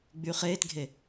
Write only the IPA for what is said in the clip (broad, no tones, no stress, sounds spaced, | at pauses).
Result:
ɡ͡b y χ eː t ɡʱ e